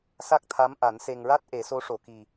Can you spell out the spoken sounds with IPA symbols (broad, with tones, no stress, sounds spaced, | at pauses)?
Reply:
s a˦˥ k̚ t̪ʰ a˧˥ m ʔ a˨˩˦ n s e˨˩ ŋ ɹ a˦˥ t̚ ʔ e˨˩˦ s o˧˥ ʂ o˨˩˨ k i˨˩